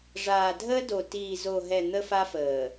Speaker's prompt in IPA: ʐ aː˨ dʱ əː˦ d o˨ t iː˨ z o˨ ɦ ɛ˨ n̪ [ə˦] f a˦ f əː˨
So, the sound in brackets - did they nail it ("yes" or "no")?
yes